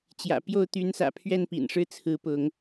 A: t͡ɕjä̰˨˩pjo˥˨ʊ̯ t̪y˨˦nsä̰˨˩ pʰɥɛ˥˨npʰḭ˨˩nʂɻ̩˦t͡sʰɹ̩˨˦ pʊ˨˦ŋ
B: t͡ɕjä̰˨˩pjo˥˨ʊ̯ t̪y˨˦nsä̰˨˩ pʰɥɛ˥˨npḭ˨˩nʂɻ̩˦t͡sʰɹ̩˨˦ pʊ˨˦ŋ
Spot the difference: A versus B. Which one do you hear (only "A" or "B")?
B